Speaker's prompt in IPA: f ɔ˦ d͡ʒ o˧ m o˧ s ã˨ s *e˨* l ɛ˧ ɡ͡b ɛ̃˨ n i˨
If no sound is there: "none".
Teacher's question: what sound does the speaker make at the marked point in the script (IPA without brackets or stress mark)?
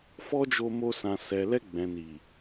ɛ˨